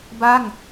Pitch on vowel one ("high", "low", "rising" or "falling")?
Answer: falling